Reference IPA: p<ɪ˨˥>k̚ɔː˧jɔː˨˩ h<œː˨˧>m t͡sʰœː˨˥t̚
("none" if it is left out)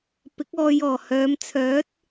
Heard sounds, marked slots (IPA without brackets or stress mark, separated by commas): ɪ˨˥, œː˨˧